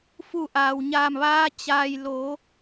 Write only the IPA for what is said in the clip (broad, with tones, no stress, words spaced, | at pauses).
fu˧˩ʔaː˩wɲaː˧˩mʋaː˧ t͡ɕaː˩jloː˩˧